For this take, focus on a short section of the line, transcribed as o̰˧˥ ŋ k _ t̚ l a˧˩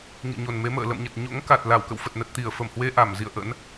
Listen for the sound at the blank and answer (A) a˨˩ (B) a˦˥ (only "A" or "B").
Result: A